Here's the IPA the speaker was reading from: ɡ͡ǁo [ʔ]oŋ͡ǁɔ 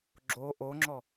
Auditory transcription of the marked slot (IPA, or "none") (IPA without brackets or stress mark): ʔ